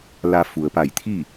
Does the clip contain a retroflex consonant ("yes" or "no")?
no